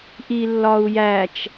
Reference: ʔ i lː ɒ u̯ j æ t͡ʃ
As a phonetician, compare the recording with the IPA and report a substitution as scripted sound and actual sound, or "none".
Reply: none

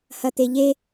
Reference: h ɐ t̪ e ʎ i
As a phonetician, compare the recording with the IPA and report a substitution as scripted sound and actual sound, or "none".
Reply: i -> e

